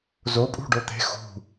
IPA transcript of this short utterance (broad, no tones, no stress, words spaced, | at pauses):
zopʼṳ ɖot̪e̤ xṳ